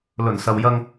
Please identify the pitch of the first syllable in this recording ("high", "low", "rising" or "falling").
low